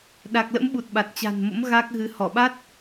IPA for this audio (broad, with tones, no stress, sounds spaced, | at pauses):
ɗ a˨˩ k̚ l ə̰˧˥ m ɓ u˨˩ t̚ ɓ a˨˩ t̚ t͡ɕ a̤˨˩ n m o̰˧˥ m ɣ a˦˥ k̚ ɣ ɨ˨˦ h ɔ˧˩ ɓ a˦˥ t̚